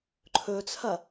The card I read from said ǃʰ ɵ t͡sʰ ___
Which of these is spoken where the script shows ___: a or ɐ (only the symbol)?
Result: ɐ